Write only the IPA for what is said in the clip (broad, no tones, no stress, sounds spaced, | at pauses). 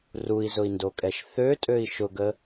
r u i̯ z ʊ i̯ n d o kʼ ɛ ʃ θ ø tʼ ø i̯ ʃ ʊ ɡ ə